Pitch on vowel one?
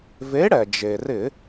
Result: rising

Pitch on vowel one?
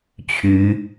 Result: rising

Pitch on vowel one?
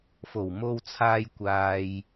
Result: low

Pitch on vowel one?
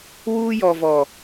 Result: high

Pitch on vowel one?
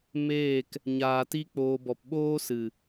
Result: falling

